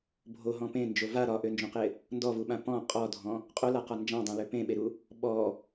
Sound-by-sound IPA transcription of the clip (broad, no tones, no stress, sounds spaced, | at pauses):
bʱ o ɦ ɔ̃ p ẽ n d͡ʒ o v a ɾ ɒ ʔ ø n d͡ʒ õ q ɪ | n d ɔ v u ɓ ã p ɔ̃ qʼ ɔ dʱ ɔ̃ | qʼ o l a q ɒ n d͡ʒ ã dˤ ẽ l ø p ẽ ɓ e ɾ u | ɓ ɔ